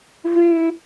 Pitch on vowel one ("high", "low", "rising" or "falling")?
high